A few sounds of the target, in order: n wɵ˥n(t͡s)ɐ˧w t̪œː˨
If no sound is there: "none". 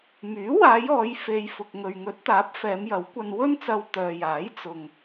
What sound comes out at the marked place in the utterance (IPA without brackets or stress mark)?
t͡s